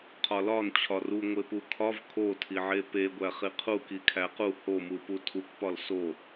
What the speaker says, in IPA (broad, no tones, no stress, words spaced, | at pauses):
qʰɒlɒn t͡ɕʰɒru ŋʷepukʰɒv kʰotʰiʕe peɡʷæ χiqʰu kikʰæqu homupu tʰukʷpɒl so